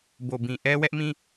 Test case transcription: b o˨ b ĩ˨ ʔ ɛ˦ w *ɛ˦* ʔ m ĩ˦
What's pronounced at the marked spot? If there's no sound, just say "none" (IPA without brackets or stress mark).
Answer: ɛ˦